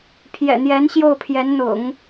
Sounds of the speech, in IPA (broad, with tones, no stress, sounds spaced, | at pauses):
pʰ j ɛ̰˨˩ n̪ j ɛ˧˥ n ɕ j o˥˩ ʊ̯ pʰ j ɛ˧˥ n n̪ ʊ̰˨˩˦ ŋ